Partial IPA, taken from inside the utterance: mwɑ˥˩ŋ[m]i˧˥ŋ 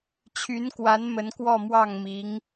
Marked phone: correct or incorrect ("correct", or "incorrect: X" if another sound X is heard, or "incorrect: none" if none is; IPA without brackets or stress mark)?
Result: correct